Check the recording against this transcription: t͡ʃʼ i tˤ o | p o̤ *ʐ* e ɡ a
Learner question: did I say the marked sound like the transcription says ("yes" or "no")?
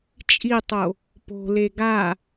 no